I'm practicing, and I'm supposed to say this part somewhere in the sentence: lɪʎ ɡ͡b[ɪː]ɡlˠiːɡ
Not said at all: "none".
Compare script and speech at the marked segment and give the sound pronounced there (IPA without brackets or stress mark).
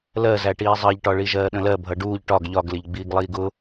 iː